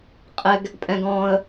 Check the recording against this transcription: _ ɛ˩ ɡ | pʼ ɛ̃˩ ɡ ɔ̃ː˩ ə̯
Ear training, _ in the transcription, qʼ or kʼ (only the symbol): qʼ